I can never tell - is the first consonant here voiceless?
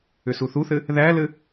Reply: yes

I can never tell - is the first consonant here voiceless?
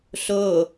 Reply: yes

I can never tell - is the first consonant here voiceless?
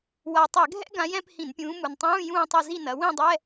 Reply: no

